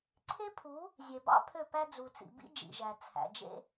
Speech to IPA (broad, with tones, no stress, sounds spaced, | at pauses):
ǀʰ e˦ pʰ u˨˦ | zʲ e˨ b ɑ̰˦ pʰ ø˦˨ p æ˦ d͡z u˨ t͡s ḭ˨ b ḭ˦ d͡ʒ ḭ˨ ʒ æ˨ t͡sʰ æ̰˨ d͡ʒ ḛ˦